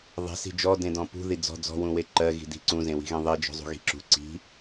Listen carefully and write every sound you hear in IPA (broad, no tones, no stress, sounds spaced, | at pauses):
ðˤ e̤ s i̤ d͡ʒ ɔ d ẽ d ɔ̃ p ṳ ð i d͡z ɔ̤ d͡z ɔ̤ w ũ w e ǃ ɜ ɣ i̤ d i̤ ǀ ũ z ẽ w i̤ ɣ ẽ ðˤ i d͡ʒ ɔ̤ zˤ ṳ ɣ i̤ ǁ ṳ ǀ i̤